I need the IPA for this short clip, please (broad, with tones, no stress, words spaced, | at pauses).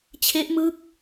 t͡ɕʰe˦˥ʔmɯ˦˥k̚